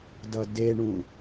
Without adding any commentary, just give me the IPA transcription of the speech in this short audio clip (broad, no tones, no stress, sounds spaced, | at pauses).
d ʌ d e ɳ ũ